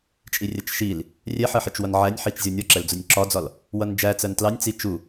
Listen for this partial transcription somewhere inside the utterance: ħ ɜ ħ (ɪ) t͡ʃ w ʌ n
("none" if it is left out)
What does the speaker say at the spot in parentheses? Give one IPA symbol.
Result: ɪ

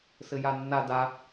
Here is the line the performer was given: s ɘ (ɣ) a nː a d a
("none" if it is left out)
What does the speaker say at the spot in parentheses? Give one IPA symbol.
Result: j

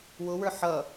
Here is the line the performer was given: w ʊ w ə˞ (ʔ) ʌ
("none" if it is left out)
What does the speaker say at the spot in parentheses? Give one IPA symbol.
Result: ħ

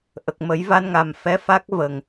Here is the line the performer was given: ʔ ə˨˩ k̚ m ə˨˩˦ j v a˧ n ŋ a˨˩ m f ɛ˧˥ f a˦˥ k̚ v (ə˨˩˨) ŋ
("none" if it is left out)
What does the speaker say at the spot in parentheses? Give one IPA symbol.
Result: ə˨˩˨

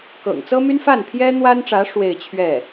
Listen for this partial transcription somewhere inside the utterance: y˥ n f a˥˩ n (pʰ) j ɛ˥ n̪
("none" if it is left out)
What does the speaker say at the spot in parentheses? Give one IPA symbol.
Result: pʰ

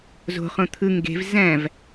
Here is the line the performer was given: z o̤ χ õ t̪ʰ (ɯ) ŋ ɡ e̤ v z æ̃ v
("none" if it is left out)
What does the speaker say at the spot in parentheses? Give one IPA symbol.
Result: ɯ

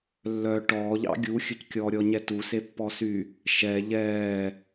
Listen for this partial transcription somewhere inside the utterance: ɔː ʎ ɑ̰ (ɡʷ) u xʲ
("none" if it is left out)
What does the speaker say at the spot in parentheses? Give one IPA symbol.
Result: ɡʲ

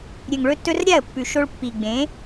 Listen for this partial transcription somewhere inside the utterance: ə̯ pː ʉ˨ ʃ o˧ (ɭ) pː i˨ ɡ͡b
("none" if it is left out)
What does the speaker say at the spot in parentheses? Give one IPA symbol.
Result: ɭ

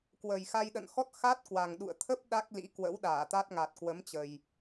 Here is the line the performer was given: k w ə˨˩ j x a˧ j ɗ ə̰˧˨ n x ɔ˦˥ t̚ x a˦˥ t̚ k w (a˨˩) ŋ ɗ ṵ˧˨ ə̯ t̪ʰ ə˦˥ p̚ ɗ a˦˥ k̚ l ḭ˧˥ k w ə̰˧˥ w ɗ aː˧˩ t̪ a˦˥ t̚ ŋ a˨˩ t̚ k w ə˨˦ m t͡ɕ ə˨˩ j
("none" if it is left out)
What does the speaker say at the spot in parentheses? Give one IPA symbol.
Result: a˨˩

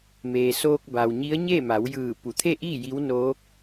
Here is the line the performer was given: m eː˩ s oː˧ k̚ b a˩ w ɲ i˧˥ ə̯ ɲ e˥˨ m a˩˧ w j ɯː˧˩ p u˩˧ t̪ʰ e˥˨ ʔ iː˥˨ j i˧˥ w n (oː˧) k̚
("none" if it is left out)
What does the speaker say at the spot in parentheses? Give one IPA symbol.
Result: oː˧˥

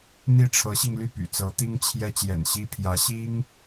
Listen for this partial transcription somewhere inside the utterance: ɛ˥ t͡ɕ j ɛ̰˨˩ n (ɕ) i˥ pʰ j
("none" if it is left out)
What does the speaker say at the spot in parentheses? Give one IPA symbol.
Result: ɕ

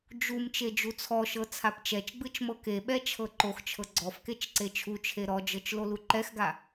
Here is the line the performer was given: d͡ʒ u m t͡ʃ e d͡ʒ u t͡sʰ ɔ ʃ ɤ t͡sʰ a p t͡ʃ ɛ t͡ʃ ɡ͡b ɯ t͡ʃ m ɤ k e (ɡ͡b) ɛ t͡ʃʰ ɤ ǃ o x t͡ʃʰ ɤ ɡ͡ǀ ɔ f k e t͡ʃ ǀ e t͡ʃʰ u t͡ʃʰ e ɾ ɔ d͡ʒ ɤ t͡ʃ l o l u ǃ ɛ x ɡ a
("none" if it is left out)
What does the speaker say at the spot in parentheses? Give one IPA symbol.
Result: ɓ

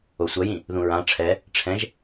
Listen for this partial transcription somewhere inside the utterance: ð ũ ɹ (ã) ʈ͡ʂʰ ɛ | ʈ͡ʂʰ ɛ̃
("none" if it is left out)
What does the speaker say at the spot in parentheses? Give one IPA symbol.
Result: ã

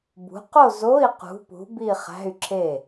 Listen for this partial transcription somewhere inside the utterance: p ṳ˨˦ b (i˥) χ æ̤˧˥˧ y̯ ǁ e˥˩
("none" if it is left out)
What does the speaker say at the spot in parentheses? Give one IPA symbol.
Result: i˥˧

